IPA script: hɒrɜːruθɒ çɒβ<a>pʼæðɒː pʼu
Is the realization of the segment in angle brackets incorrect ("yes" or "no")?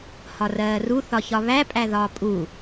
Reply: yes